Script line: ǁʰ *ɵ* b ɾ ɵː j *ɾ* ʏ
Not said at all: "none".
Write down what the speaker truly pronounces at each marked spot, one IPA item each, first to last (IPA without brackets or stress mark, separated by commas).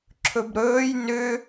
ɵ, n